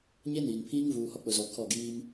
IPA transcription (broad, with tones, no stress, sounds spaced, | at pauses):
ɲ e˦ n iː˨ n pʰ iː˦ ŋ v uː˨ h ɔ˦ k͡p ʊ˨ z ɔ˨ kʰ ɔ˦˨ ɡ iː˦ m